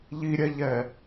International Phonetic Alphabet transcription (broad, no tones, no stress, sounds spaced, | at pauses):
ʎ i ɾʲ ɛ ʎ ɛ